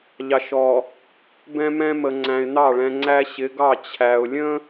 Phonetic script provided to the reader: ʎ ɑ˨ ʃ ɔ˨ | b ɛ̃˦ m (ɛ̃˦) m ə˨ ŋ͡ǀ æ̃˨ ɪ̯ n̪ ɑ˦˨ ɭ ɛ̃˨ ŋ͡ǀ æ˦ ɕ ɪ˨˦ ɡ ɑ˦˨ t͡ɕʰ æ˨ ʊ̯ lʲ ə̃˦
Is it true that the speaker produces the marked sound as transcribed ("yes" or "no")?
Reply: yes